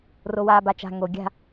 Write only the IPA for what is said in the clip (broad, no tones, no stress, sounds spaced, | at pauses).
r o w aː b a t͡ʃ a̤ ŋ o ɡʲ a̤